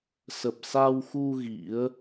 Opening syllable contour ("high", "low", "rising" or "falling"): low